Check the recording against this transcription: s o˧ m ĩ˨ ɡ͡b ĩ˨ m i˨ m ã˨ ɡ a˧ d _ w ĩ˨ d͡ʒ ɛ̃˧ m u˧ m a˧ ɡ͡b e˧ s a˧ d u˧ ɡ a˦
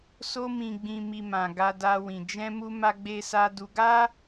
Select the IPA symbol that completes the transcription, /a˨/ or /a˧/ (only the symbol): a˧